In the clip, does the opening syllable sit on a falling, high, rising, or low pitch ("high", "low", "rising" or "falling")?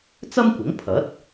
high